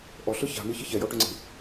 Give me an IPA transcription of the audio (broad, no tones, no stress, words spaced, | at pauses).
ʔɔɬɯ ça̤mi çiçɛjɔ ʈʏŋ͡ǀi̤